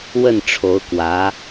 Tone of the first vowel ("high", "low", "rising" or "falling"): falling